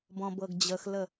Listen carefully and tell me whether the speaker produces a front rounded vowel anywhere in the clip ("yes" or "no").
no